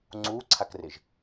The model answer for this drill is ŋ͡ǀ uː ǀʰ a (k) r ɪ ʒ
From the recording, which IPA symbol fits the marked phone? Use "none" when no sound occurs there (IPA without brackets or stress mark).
k